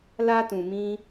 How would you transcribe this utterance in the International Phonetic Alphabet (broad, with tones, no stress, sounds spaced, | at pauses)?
l a˧ t ũ˨ m ĩ˧